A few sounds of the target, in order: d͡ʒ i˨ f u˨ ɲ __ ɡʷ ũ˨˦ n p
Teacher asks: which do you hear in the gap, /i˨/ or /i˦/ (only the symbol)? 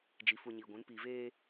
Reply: i˨